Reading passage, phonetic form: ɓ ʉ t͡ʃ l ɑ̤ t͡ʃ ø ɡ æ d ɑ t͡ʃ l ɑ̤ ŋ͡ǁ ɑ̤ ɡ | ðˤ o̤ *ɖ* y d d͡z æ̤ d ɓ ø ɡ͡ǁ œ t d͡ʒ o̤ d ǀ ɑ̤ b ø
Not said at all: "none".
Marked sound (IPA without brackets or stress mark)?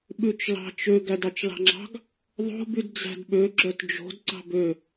b